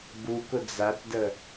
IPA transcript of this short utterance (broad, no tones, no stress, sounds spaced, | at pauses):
b u k ʊ d͡z a t d ə